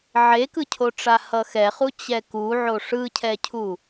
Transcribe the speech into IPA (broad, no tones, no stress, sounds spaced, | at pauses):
ʕ e k ɯ cʰ o ʈ͡ʂ a h ʌ x ɛ χ u t͡ɕ ɛ k u ʕ o ʂ ɯ cʰ ɛ cʰ u